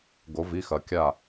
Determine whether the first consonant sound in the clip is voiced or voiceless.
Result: voiced